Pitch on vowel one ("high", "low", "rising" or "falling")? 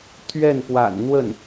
falling